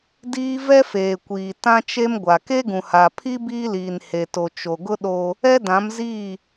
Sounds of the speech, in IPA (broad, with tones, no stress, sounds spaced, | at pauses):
d iː˦ v ɛ˦ f eː˨ kʷ iː˨ t ã˦ t͡ʃ e˦ m ɡʷ a˨ k e˦ ɡ ũ˨ h a˨ pʰ i˦ b iː˦ l iː˨ n h e˨ t o˨ t͡ʃ o˨ ɡ ʊ˦ ɗ o˦ | ɛ˦ d ã˨˦ m z iː˦˨